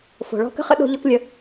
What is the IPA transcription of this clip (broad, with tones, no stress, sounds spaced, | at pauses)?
f o̤˩ ɭ ɔ̤˥ k ə̤˥ χ ə̰˥ ɗ o̤˥ ʎ ɔ˥ k lʲ ə˧